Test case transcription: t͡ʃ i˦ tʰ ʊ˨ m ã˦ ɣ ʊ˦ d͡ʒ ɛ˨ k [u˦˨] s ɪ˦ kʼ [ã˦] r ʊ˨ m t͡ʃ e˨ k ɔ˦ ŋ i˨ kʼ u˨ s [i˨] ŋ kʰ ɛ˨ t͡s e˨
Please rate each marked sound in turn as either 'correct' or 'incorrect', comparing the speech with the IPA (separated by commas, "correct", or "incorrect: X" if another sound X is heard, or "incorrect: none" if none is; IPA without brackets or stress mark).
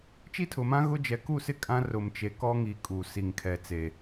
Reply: correct, correct, correct